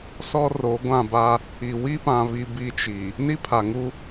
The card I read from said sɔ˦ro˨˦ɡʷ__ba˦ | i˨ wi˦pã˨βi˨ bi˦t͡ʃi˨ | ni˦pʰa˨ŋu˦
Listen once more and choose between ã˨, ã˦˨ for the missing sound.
ã˦˨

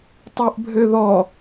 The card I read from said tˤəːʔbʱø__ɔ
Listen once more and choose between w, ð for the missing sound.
ð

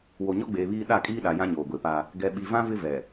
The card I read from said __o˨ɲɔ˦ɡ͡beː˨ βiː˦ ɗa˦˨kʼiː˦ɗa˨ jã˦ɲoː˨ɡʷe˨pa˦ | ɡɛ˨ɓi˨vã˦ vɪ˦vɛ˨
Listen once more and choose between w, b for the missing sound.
w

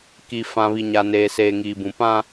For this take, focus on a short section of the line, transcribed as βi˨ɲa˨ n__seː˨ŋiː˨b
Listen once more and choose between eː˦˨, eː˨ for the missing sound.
eː˨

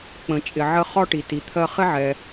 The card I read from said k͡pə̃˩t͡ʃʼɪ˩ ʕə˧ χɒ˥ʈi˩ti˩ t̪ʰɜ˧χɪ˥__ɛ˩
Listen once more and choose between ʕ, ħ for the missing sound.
ʕ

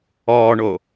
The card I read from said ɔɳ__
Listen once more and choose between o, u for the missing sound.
o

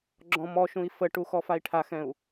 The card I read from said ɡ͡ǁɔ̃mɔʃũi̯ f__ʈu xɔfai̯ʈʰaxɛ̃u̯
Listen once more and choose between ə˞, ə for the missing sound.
ə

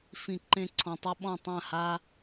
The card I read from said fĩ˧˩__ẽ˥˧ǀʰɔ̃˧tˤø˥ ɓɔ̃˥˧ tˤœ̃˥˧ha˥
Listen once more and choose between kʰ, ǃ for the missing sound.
ǃ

